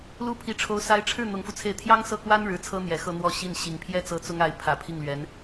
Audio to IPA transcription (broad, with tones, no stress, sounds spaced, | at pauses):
l u˥˩ pʰ i˧˥ ʈ͡ʂʰ o˧˥ ʊ̯ s a˧˥ ɪ̯ ʈ͡ʂʰ ɻ̩˥˩ n̪ ʊ˧˥ ŋ f u˧ t͡sʰ e˥˩ ɪ̯ t̪ʰ j ɑ˥ ŋ s ɤ˥˩ k w a˥ n ɻ ɻ̩˧˥ t͡sʰ ɤ˥ n̪ j ɛ˨˩ x ɤ˥˧ n̪ w ɔ˥˧ ɕ i˥˩ n ɕ i˨˩ ŋ pʰ j ɛ˥ t͡s ɤ˧˥ t͡s ʊ˥ ŋ a˧˥ ɪ̯ pʰ ä˨˩ pʰ i˥˩ ŋ l ɥ ɛ˧˥ n